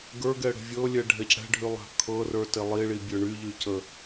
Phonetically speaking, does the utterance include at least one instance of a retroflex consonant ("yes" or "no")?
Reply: yes